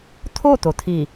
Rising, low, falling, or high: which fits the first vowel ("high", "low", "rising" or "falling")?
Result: falling